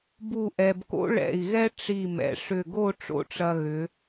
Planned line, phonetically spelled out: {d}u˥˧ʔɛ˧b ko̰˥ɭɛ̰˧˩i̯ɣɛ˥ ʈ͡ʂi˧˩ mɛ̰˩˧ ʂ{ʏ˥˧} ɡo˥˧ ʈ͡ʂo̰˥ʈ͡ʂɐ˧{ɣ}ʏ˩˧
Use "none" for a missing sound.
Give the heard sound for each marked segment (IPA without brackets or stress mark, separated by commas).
b, ʏ˧˩, ɣ